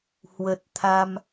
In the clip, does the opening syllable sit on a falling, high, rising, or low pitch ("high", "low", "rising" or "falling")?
low